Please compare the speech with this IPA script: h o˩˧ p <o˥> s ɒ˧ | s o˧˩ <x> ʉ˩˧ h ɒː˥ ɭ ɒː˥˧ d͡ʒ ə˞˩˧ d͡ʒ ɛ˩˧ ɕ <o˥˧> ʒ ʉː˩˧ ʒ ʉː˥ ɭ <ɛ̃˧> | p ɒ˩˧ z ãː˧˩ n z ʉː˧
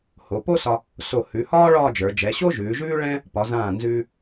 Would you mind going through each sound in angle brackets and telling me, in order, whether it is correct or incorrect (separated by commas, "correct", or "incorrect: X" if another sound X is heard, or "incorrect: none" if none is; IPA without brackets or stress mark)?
correct, incorrect: h, incorrect: o˥, incorrect: ɛ̃˥